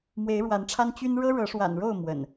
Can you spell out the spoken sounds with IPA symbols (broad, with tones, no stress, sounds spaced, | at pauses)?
m w e˨˦ ɪ̯ ɻ w a˨˦ n ʈ͡ʂʰ a˦ n t͡ɕ y˦ n ɻ ɤ˦ ɻ ɤ˨˦ ʂ w a̰˨˩ n ɻ o˥˨ ʊ̯ m w ə̰˨˩ n